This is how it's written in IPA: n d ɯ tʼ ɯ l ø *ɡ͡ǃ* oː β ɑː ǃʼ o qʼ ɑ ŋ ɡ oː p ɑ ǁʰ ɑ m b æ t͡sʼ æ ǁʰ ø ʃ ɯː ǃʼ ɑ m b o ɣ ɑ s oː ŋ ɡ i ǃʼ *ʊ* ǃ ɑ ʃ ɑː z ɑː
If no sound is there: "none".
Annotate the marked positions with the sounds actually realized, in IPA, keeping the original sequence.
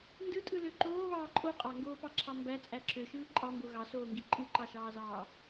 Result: ǃ, ɯ

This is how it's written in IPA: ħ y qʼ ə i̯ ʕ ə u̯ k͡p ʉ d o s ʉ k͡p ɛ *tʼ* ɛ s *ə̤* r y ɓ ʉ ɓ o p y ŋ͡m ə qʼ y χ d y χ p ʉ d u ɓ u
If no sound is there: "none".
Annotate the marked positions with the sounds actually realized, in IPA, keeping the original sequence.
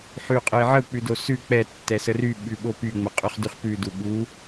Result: tː, ə

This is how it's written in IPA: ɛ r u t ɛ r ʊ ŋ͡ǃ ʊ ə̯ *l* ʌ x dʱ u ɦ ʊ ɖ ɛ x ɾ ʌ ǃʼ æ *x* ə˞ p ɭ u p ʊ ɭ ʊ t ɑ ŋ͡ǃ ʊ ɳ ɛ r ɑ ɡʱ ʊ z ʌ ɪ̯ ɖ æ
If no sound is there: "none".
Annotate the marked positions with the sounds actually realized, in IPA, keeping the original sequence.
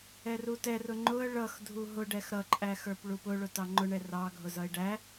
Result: ɭ, x

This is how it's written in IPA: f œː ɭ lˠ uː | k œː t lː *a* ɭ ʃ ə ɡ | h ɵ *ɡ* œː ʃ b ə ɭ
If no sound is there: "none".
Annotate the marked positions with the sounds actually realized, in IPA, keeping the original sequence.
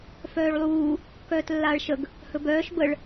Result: aː, b

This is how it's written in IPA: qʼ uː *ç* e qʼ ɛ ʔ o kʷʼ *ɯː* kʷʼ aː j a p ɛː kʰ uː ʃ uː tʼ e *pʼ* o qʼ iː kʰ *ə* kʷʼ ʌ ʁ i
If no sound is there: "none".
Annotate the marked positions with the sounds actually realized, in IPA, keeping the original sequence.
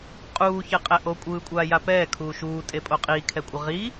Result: ç, ɯː, pʼ, ɛ

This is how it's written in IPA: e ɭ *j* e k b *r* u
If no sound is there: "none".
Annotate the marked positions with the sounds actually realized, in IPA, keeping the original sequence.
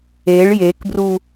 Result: j, r

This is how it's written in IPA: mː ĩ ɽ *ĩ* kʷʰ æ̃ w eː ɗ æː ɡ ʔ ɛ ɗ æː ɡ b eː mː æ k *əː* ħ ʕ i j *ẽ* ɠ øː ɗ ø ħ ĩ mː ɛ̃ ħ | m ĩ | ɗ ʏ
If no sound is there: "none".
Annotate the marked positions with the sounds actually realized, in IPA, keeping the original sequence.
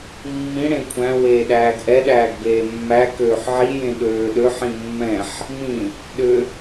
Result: ẽ, øː, ẽ

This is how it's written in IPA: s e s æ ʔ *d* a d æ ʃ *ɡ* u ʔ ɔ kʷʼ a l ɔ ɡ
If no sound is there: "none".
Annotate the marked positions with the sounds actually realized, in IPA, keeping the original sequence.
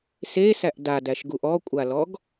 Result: d, ɡ

